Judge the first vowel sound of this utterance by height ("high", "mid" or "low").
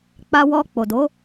low